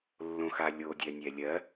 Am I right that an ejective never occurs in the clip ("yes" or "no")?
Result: yes